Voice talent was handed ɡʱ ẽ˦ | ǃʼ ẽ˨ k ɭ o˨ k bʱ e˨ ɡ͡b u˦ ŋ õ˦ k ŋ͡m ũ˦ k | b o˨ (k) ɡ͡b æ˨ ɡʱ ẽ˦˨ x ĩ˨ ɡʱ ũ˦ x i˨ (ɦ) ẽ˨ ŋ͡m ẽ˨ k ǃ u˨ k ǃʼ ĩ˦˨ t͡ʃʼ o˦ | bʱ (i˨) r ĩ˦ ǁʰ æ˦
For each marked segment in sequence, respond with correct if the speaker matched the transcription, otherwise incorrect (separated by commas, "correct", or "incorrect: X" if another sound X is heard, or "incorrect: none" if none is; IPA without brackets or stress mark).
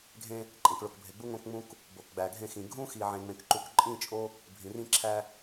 correct, incorrect: ʕ, incorrect: ĩ˨